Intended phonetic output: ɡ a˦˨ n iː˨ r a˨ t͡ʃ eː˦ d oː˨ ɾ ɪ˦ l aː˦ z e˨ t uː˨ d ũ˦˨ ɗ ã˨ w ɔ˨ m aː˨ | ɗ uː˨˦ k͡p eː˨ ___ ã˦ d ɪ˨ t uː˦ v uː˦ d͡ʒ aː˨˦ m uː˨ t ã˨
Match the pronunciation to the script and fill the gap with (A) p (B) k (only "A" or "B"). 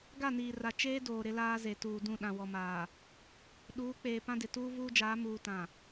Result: A